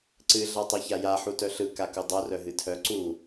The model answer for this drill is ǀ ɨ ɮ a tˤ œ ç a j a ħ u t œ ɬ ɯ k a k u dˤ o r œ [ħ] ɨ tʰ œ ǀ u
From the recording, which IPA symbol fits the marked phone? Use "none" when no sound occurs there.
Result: ɦ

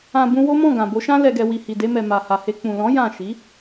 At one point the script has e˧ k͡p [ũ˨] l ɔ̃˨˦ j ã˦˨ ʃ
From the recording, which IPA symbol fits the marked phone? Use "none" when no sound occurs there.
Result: ũ˨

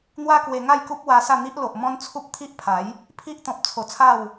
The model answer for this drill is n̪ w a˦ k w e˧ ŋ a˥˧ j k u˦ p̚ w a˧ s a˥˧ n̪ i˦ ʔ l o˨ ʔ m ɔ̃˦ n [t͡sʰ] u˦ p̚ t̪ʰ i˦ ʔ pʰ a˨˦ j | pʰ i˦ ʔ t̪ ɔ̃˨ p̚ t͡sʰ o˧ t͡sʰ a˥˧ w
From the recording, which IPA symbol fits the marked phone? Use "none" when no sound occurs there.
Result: t͡sʰ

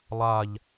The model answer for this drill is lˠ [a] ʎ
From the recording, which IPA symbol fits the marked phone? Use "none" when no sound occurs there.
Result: a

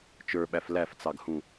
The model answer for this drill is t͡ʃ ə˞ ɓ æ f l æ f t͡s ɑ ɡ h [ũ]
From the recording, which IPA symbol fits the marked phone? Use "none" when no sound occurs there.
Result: ũ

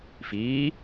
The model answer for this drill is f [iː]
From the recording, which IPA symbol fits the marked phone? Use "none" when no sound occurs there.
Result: iː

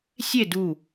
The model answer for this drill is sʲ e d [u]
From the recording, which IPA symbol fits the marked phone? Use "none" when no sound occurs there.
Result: u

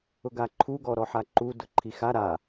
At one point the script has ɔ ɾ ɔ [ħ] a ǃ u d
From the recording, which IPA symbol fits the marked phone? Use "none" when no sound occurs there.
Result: ħ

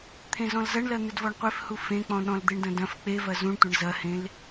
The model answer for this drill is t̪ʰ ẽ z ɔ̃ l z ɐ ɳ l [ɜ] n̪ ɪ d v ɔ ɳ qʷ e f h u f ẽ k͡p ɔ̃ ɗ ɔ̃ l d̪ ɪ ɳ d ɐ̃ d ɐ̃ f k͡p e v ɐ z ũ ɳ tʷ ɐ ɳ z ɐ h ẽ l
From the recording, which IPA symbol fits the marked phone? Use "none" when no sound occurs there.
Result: ɜ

